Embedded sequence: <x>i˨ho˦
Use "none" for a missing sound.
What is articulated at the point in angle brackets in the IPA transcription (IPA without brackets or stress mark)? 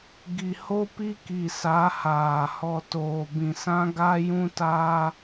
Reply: ɡ